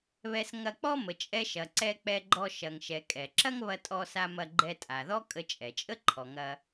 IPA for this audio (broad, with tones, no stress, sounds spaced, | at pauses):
β ɛ˧ s ŋ ɐ˧ k͡p ɔ˥ m ə˩ t͡ʃʼ ɛ˧ ʃ ɐ˩ ǀ ɛ˧ k͡p ɛ˧ ɡ͡ǃ ɔ˧ ʃ ɐ˩ ŋ ʃ ɛ˩ kʼ ɛ˩ ǁ ɐ˥ ŋ β ɐ˧ tʼ ɔ˧ s a˧ m ɐ˧ ɡ͡ǃ ɛ˧ tʼ a˩ ð ɔ˥ kʼ ə˧ t͡ʃʼ ɛ˩ t͡ʃʼ ə˥ ǃʰ ɔ˩ ŋ ɐ˧